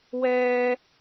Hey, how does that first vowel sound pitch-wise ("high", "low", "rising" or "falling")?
high